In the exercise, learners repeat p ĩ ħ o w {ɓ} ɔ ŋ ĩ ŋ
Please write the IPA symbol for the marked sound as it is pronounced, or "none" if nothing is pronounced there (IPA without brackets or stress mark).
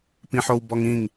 b